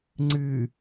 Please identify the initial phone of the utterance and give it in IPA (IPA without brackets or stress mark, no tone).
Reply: ŋ͡ǀ